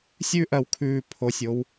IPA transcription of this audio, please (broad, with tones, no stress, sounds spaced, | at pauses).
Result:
sʲ ʉː˦ ʔ ɜ˨˩ w kʰ ʉː˨˩ pʰ o˨˩ sʲ o˨˦ w